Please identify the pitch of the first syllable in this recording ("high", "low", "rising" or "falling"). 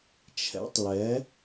rising